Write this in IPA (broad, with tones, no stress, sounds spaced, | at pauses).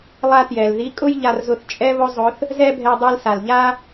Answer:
lˠ a˥ t j ɛ˩ l ð i˧˥ kʼ ʊ˥ j ʎ a˧ r z ʊ˧ θ t͡ʃʼ ɛ˥ β ʊ˥ zˤ ʊ˧˥ θ | z ɛ˥ bʱ ɛ˧ dˤ i˧ l s a˩ l ʎ a˥